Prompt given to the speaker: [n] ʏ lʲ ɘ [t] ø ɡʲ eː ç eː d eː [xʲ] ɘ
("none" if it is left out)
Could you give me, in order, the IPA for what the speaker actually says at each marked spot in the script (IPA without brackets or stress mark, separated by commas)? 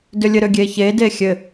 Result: d, ɾ, xʲ